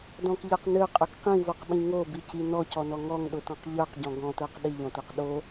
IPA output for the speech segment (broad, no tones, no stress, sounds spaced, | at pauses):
d ɔ̃ k ʎ ə˞ q n ø qʼ ø k q ĩ v o q ɓ ĩ ŋ o b i c i n ɔ c ɔ n ɔ ŋ ɔ ŋ ɗ ʊ t ɔ̃ q ʎ ə˞ q ɟ ɔ̃ ɡ ɔ̃ t ə˞ q ɗ i ʎ õ t o q ɗ o